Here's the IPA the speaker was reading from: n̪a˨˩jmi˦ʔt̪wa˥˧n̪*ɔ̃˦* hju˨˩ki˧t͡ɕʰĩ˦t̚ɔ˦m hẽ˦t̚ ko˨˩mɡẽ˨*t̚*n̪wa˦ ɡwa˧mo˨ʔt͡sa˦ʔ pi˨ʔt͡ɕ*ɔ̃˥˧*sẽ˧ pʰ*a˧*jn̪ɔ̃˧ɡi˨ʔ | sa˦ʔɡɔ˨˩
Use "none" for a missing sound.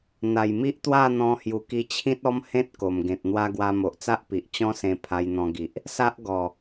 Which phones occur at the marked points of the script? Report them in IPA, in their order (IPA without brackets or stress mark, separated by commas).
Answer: ɔ̃˧, t̚, ɔ̃˦, a˧